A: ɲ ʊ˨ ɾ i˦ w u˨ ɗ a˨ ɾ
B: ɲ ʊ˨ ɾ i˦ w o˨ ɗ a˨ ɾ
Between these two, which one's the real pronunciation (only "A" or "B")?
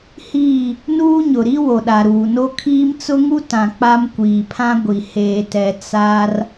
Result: B